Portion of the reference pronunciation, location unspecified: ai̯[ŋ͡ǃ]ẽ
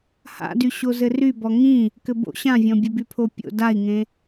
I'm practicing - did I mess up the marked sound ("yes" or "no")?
yes